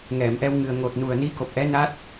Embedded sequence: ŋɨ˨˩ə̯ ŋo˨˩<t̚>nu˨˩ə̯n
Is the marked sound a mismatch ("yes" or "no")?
no